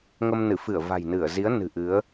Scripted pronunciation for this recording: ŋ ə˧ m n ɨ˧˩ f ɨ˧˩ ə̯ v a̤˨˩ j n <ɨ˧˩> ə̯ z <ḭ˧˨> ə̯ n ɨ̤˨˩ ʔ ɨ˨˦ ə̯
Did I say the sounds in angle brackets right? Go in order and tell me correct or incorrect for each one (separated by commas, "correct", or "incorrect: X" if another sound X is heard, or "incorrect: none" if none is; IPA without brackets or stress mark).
correct, incorrect: i˨˦